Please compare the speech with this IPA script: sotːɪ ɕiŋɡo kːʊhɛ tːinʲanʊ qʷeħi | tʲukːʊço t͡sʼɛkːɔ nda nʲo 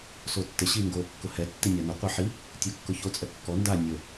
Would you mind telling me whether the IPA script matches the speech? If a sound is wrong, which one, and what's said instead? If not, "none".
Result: none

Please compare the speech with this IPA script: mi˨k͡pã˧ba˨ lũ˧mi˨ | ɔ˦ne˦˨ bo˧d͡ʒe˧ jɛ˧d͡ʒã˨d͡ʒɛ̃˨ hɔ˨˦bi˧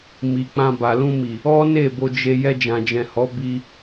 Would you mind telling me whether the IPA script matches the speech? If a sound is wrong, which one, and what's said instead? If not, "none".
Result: none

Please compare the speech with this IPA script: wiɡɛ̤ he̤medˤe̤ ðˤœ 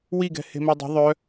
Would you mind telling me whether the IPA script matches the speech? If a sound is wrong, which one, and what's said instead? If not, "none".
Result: none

